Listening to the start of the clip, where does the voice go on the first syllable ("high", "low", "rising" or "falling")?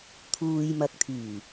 low